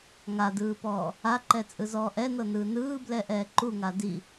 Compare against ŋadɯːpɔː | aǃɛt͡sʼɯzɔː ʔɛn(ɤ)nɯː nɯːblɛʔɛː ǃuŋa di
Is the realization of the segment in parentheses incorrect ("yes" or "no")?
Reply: no